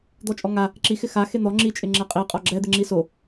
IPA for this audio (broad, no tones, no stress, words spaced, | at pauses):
d̪ɔt͡ʃʼɔŋa | ǁixɪ xa xen̪ɔ ŋ͡ǁit͡ʃʼɪ ŋ͡ǁɛqʼiqʼɔ ɡ͡ǁɛd̪ɪŋ͡ǁi so